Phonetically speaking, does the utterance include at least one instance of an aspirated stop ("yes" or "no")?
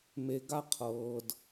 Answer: yes